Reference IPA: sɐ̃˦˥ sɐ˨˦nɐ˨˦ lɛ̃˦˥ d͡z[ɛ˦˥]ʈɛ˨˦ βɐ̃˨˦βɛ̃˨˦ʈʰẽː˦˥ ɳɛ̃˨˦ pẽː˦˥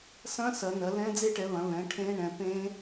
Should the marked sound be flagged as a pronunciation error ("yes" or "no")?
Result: yes